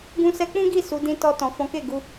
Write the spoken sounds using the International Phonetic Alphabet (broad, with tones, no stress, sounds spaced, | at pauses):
ɡ ũ˧ s ɛ˧ k͡p ũ˦ ɡ i˦˨ s u˨˦ d ĩ˦ t ɔ˧ t ɔ̃˨ f ɔ̃˨˦ k e˦˨ ɡ u˧